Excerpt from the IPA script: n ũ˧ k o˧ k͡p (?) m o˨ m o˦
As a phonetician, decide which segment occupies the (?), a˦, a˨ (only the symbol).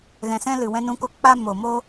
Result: a˦